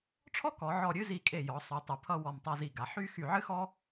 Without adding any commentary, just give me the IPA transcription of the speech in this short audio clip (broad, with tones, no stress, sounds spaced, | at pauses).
ʈ͡ʂʰ ɔ˥ k ɔ˩˧ ʕ ɔ˧˩ ɾʲ ɨ˥˧ z i˧˩ kʼ e˧˩ j ɔ˩˧ sˤ y˩˧ tˤ ɨ˩˧ pʰ ʌ˥˧ w ɔ˧˩ m tˤ a˧ z i˧˩ ɡ a˩˧ ħ y˥˧ x y˧˩ ʕ ɨ˥ x ɔ˥